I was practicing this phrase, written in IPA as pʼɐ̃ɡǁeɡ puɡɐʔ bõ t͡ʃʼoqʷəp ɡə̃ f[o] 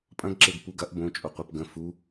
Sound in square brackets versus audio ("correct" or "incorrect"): incorrect